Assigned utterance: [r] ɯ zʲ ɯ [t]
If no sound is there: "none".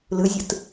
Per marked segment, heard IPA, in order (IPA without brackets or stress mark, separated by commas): l, t